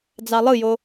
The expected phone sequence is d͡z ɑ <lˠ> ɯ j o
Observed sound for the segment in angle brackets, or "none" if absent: lˠ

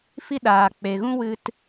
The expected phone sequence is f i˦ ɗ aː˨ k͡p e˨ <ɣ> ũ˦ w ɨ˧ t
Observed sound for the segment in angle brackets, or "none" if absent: ɣ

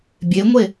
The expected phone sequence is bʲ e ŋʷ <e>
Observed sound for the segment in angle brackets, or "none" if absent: e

